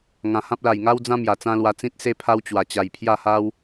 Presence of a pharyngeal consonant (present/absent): absent